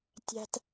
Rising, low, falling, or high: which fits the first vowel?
high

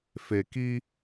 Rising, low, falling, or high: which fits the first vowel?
low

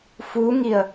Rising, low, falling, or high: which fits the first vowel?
rising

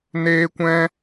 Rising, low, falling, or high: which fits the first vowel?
high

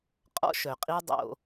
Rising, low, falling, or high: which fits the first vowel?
high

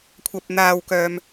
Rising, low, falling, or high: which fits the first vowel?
low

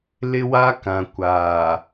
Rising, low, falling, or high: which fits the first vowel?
high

